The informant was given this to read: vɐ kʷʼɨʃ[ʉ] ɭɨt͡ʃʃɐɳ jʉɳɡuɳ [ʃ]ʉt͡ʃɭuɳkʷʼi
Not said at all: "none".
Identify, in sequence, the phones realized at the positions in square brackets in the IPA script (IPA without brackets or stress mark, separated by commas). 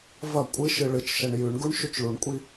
ɨ, ʃ